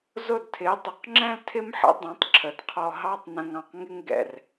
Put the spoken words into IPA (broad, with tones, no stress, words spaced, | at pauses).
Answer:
zʊ˥˩dtʰɪ˩˥ dˤɪ˩˥qŋ͡ǁɛ̃˥l tʰɪ˥mħə̰˩˥ dˤɛ̃˩˥tˤǁʰə˩dqʰɔ˧ ɦɑ˥tˤ nə̃˧ŋɑ̃˧qŋɪ˥ŋ ɡɛ̰˩r